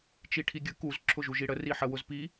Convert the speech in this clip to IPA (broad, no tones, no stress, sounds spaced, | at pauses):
t͡ʃ i ʈʰ i ɡʲ ə k u z ǁʰ ʊ ʒ u ʒ i ɽ ə r i ħ ə w ʊ z p i